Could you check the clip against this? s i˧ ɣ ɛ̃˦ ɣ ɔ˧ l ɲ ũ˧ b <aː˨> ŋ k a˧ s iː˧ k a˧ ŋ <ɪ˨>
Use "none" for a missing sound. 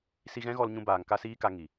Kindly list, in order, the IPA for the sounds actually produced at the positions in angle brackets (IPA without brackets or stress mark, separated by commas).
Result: aː˨, i˨